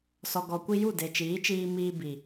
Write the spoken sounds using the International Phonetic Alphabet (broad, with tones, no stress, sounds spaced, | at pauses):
s ɔ˨ ɡ ɔ˨ kʷ i˧ j u˦˨ d e˨ t͡ʃ iː˨˦ t͡ʃ iː˧ m iː˧ b i˨